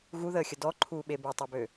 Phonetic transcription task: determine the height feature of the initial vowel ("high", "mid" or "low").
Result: high